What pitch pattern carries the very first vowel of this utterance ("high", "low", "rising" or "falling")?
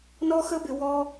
high